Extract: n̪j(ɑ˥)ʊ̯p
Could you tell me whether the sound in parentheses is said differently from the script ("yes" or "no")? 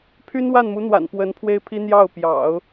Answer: yes